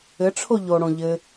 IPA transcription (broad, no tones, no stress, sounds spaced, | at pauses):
ɘ ʈ͡ʂʰ o ʎ o ɽ õ ʎ ɘ